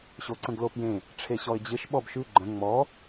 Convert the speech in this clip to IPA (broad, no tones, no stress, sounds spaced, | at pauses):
ɕ o ǀ ə̃ ɡ l o p j ẽ | ʈ͡ʂʰ e ɕ ɔ ɪ̯ d͡ʑ ɪ ʃ ɓ ɔ b ʃ ʉ ɡ͡ǃ ə̃ ŋ͡m ɔ